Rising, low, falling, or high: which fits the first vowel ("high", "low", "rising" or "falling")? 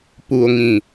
low